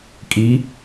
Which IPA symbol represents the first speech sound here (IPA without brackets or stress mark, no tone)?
kʼ